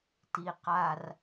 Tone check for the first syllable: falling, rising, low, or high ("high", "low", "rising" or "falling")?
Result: low